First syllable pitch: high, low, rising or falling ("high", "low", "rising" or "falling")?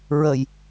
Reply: low